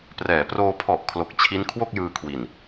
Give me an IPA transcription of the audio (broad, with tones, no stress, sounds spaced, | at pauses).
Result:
p r ɛː˩˦ p r oː˧ pʰ ɔ˨˩ ʔ kʰ l o˨˩ k̚ t͡ɕʰ i˦˥ n kʰ w o˥˩ k̚ j ɯː˧ kʰ w i˨˩ n